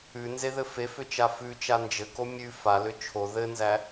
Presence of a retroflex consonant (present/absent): absent